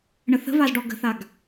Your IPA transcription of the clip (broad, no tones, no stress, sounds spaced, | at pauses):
ɳ ə θ ə̤ v a z ɖ ɔ ɡ ə̤ θ a ɡ